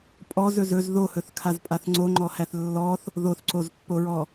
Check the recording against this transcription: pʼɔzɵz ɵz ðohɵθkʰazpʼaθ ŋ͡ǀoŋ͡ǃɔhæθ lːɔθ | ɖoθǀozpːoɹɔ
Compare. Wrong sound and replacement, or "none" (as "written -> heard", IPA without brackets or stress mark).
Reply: ɖ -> ð